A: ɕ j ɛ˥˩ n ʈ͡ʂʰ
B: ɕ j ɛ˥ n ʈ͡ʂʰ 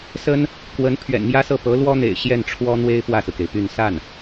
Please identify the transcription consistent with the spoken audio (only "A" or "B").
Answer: A